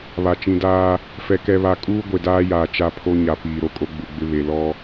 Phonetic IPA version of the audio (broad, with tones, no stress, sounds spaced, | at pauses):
β a˨ t͡ʃ ĩ˨ d aː˦ | f ɛ˦ k ɛ˦ β a˦ kʼ uː˦ ɡʷ e˨ d aː˦ j aː˨ t͡ʃ a˦ pʰ o˦ ɲ a˨ p iː˨ ɾ o˦ kʼ o˦ ɡ͡b u˨ ɡ͡b ɪ˦ β e˨ l ɔ˦